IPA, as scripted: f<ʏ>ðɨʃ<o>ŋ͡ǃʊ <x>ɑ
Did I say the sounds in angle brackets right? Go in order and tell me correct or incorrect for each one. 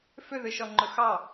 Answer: correct, incorrect: ɔ, correct

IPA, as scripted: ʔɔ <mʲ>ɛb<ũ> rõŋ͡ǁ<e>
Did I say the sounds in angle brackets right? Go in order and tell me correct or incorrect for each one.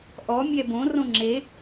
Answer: correct, incorrect: õ, correct

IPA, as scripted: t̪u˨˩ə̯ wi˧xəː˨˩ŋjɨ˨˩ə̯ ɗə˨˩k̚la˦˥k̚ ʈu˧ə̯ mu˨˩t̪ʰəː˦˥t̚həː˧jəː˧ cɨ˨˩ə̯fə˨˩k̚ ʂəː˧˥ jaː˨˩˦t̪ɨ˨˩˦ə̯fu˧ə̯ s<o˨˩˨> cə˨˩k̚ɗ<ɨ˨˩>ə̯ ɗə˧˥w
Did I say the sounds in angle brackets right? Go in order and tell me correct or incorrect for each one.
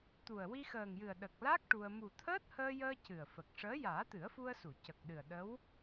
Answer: incorrect: u˨˩˨, correct

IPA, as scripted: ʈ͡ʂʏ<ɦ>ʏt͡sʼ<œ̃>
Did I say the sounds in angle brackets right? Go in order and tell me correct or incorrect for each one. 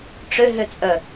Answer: correct, incorrect: œ

